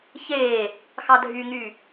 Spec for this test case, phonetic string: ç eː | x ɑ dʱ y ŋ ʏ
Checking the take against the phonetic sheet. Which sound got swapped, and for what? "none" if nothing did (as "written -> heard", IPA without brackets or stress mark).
ʏ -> y